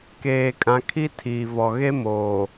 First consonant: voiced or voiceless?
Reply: voiceless